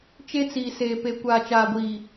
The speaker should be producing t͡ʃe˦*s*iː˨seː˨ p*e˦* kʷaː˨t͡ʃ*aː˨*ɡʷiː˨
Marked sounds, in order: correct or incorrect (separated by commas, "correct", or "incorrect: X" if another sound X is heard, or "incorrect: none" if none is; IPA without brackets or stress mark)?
incorrect: t͡s, incorrect: e˨, correct